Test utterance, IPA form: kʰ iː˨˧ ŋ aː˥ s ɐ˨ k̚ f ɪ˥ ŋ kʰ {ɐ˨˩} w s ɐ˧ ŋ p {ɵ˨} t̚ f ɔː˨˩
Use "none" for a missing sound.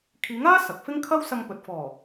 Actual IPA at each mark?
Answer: ɐ˥, ɵ˨

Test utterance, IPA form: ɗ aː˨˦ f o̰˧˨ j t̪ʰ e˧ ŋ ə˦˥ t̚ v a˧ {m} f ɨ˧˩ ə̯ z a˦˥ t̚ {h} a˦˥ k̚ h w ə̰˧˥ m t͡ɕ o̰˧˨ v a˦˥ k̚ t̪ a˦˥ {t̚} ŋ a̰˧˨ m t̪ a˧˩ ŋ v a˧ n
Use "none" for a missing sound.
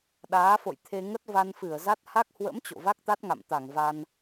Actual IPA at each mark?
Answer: n, h, t̚

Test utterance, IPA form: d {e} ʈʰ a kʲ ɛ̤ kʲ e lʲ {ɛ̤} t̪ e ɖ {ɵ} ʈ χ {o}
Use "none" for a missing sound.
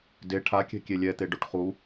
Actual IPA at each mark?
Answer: e, ɛ, o, u

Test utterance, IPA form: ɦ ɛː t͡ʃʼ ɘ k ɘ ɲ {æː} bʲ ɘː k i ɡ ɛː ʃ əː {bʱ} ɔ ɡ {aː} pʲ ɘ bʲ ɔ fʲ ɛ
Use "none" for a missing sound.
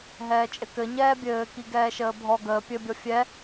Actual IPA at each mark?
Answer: ɛː, bʱ, əː

